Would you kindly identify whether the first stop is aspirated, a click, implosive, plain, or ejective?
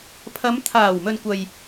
aspirated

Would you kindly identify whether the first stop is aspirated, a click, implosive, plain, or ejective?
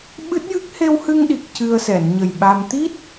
implosive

